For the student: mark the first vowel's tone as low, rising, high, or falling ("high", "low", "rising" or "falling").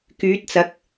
rising